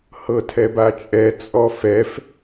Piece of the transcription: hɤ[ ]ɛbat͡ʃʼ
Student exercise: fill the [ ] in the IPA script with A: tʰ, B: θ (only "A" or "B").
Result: A